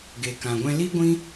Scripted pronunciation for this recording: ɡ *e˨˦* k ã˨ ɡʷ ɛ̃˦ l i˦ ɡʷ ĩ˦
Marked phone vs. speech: incorrect: e˨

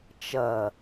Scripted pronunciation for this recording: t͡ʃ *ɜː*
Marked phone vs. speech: incorrect: ɜ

